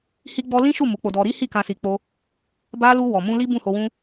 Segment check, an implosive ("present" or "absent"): absent